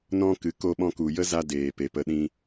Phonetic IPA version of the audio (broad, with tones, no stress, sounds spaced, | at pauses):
n ɔ̃˦ k ɨ˨˦ k o˧ ɓ ɔ̃˧ k u˨ j ə˦ z a˧ d eː˨ p e˨ p ə˧ ɗ ĩ˧